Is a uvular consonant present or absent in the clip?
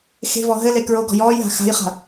present